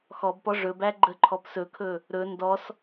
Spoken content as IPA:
x ɔ b p ɔ ʐ ɵ b æ ɡ͡ǃ ə ǃʰ ɔ p s ɵ kʰ ɵ | ɾ ɵ n d ɔ s

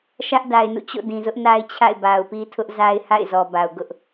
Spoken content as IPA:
ʃ ä˦ ʔ d a˨ ɪ̯ n ṵ˦˨ t͡ɕ o̰˦˨ d ĩ˨ z ʊ˦ ʔ n a˦ ɪ̯ t͡ɕʰ a̰˦˨ ɪ̯ b a˨ ʊ̯ p i˦ tʰ ʊ˦ ʔ z a˦ ɪ̯ h a̰˦˨ ɪ̯ z ɔ˨ b a˨ ʊ̯ ɡ ʊ˦ ʔ

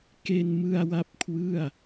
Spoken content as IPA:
k e˧ n m ɯ˧ a̯ w a˦˥ p̚ kʰ w ɯ˥˩ a̯

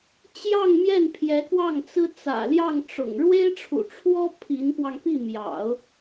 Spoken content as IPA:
t͡ɕ j ɑ˥˧ ŋ m j ɛ˥˩ n pʰ j ɛ˧˥ k w ɑ˥˩ ŋ t͡s ɹ̩˥ t͡s ä̰˨˩ l j ɑ˥˩ ŋ ʈ͡ʂ ʊ̰˨˩ ŋ ɻ w e˥ ɪ̯ ʈ͡ʂʰ ṵ˨˩ ʈ͡ʂʰ w ɔ˥ pʰ i˧˥ n p w ɑ˧ ŋ p i˥˩ m j ɑ̰˨˩˦ ʊ̯

